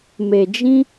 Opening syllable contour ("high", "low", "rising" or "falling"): low